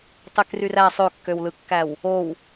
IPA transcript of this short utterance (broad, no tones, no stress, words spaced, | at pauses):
tˤekryræ sˤøkːøwlɯkːæw | ow